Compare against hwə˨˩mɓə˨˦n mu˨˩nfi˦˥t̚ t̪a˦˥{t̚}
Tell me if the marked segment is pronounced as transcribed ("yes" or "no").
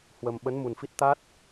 yes